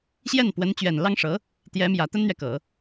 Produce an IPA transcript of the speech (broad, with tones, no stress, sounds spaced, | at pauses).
ɕ j ɛ˥˩ n p w ə˧˥ n t͡ɕ ɥ ɛ˨˩ n l ɑ˥ ŋ ʂ ɤ˧˥ | t̪ j ɛ˧˥ m j ä˨˩ t̪ ə˥ n n̪ ɥ ɛ˨ k ɤ˨˩˦